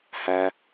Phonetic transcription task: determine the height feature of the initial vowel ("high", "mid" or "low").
low